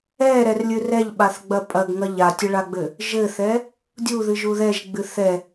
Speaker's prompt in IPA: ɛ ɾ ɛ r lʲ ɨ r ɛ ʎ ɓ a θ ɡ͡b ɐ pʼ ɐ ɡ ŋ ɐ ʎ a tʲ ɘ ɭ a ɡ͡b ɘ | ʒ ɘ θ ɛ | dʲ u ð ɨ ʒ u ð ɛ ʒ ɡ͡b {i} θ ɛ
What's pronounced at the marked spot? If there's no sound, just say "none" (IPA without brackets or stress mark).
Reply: ɨ